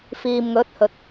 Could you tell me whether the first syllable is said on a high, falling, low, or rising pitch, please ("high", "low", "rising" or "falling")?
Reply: low